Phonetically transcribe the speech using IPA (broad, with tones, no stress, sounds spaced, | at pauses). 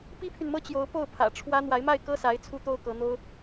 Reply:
p i˥ pʰ y˨ n m ɤ˥ t͡ɕ j o˧˥ ʊ̯ p o˥˩ ʊ̯ pʰ ä̰˨˩ ʈ͡ʂʰ w ä˥ n̪ w a˧˥ ɪ̯ m a˥˩ ɪ̯ k ɤ˥ s a˧˥ ɪ̯ t͡sʰ u˥ t̪ o˥ ʊ̯ k ɤ˧˥ n̪ o˥ ʊ̯